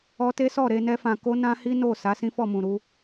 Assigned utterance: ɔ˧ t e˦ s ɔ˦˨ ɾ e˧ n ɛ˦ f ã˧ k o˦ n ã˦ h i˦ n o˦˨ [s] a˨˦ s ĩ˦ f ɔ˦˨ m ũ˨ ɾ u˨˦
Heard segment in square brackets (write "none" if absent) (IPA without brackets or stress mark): s